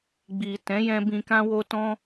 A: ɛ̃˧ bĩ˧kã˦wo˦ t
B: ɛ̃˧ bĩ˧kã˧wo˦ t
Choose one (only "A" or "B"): A